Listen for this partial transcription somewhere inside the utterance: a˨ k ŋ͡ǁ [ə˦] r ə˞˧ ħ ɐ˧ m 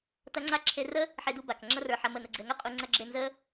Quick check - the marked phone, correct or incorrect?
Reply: incorrect